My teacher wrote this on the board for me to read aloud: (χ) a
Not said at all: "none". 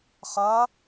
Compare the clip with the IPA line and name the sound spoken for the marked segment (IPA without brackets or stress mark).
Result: χ